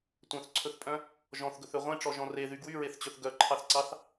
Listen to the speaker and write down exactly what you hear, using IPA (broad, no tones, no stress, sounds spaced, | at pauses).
tʷ œ̃ θ ǀʰ ɵ θ pʼ œ̃ | ʒ ɔ̃ θ ɡ ɵ θ ø ʁʷ ẽ ʈ͡ʂ ɔ ʒ ɔ̃ r e ð y ɡ w y ɹ e θ t͡ɕ ɵ θ ɡ œ ǃʰ ɑ θ ǀ ɑ θ